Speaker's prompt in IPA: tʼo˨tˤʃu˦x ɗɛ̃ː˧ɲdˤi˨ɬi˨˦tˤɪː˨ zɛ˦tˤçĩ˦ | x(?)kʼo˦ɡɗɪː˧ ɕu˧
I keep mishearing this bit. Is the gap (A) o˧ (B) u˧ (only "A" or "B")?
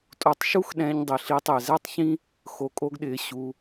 A